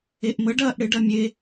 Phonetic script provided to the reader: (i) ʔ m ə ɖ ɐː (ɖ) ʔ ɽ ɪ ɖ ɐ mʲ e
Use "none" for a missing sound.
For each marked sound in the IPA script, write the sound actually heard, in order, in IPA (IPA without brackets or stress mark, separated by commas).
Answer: e, none